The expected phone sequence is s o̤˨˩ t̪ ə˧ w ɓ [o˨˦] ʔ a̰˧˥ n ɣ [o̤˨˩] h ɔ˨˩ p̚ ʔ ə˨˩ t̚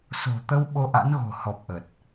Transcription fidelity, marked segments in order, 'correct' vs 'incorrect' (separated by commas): incorrect, correct